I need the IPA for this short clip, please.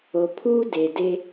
o˨ pʰ uː˦ d e˨ d e˦

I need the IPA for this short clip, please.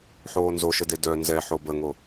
ħ oː n z o ʃ ə d e d œ n z ɛ ħ o b ə ŋ o

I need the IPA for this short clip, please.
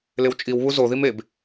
l ɪ w t͡ʃʼ i w β u z o ð i m e b

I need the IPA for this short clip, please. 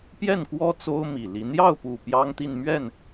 p j ɛ˥˩ n k w ɔ˥ t͡s o˥ ʊ̯ m i˨˩ l i˧˥ n̪ j ɑ˥˩ ʊ̯ p u˨˩ p j ɑ˥ ŋ t̪ i˥˧ n m ɥ ɛ˥˩ n

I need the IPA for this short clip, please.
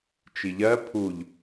t͡ʃ i ʎ ɜ pʰ u ʎ

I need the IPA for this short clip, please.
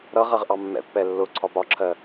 ɾ ʌ ʁ ɜ ʁ ʔ ɑ mː ɛ̰ pː ɛ lː ʊ ǀʰ ɒ p ɒ ǁʰ ɜ

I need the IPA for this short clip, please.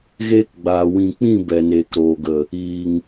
ɣ eː˧ k ɡ͡b aː˨ w ĩ˨ k͡p ĩ˦˨ b ɛ˨ n eː˨ k ɾ oː˨ ɡ ə˨ | iː˨ ŋ

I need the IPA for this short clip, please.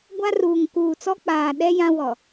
ɡʷ a˦ r uː˨ ŋ k uː˨ t͡s ɔ˦ k͡p aː˨ ɗ ɛ˦ j ã˦ w ɔ˨

